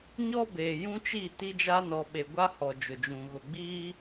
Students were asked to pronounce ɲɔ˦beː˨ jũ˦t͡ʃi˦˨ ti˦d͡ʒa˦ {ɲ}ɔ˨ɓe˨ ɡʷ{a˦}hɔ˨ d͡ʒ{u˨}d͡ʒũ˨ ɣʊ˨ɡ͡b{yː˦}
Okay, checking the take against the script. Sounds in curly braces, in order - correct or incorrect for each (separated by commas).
incorrect, correct, incorrect, incorrect